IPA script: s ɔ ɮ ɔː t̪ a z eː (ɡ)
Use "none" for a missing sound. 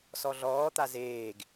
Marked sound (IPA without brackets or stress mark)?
ɡ